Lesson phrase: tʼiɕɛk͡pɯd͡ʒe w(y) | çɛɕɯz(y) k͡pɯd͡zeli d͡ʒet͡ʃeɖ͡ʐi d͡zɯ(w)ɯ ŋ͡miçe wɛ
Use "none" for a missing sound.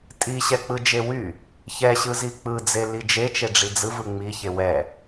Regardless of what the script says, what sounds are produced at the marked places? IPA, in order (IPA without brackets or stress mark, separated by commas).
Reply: y, i, v